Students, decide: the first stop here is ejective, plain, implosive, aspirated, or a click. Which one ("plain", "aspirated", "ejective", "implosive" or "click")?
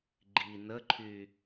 click